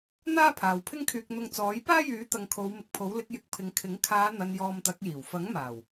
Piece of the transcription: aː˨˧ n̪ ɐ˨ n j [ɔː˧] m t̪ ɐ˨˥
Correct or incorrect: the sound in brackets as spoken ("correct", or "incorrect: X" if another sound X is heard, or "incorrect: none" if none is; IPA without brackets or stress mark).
correct